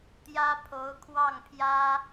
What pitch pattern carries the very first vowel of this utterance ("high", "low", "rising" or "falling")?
high